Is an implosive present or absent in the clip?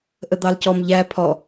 absent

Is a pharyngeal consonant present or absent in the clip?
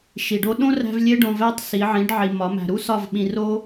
present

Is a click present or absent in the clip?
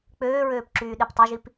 present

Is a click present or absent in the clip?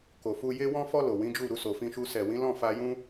absent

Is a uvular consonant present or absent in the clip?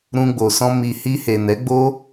absent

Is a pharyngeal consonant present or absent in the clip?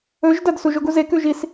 absent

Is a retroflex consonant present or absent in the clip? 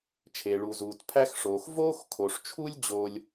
present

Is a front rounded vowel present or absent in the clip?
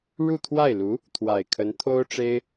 absent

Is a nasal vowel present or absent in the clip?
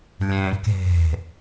present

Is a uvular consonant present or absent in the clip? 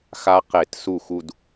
present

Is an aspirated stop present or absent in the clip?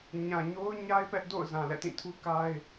present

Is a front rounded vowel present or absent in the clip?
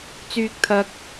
present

